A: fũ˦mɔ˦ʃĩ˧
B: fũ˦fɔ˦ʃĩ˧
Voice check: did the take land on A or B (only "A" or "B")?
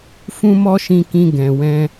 A